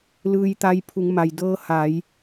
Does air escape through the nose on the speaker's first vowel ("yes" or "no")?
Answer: no